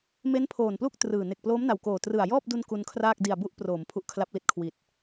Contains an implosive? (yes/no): no